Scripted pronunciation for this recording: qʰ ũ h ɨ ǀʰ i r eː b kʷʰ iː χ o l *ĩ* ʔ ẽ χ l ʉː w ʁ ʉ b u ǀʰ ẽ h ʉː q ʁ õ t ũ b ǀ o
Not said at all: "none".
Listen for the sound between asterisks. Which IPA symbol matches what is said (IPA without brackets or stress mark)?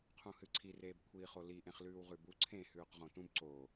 i